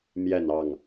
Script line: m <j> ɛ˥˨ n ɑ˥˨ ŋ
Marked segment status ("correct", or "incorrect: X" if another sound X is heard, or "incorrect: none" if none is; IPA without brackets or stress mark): correct